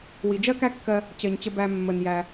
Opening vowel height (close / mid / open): close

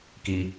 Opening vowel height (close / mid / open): close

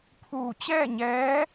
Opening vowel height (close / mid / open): close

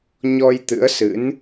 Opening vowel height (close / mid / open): mid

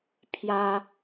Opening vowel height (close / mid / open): open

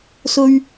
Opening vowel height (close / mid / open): mid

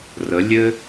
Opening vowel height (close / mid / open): mid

